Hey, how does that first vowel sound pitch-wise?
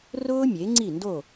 high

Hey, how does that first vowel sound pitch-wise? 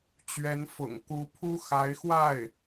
rising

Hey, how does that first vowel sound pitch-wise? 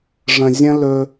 low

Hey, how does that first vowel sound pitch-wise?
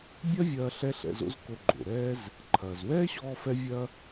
high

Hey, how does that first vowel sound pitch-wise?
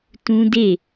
high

